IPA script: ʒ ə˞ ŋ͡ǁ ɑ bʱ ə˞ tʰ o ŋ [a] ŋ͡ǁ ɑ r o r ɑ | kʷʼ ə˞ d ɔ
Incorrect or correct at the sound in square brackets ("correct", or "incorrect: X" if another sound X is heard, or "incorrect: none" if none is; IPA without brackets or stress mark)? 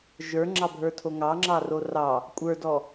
incorrect: ɑ